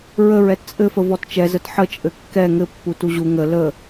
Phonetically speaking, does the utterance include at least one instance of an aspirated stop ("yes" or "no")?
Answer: no